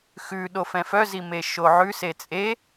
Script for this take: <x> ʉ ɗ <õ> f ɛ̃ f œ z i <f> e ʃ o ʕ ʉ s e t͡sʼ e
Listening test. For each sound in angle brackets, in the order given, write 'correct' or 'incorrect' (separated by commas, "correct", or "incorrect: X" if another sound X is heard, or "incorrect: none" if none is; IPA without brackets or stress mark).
correct, incorrect: o, incorrect: m